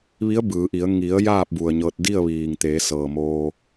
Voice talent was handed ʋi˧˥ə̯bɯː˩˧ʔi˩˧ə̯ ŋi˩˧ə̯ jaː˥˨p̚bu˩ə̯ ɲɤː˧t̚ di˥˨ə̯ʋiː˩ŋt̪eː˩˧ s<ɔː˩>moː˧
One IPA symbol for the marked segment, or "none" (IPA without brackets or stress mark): ɤː˩